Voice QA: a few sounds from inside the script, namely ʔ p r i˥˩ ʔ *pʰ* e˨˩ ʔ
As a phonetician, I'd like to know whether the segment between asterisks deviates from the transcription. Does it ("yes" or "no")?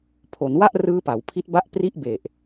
yes